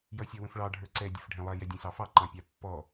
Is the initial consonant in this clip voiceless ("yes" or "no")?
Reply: no